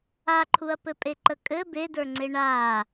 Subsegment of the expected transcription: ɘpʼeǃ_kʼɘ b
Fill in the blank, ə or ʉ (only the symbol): ə